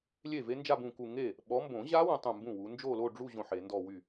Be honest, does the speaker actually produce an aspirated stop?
no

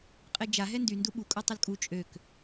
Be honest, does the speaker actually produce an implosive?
yes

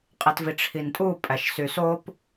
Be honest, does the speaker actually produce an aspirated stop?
yes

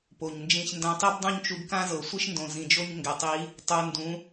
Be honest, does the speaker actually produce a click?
no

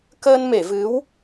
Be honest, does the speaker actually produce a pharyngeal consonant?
no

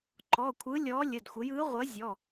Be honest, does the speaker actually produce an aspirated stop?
yes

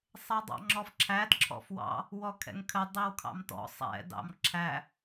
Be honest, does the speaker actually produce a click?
yes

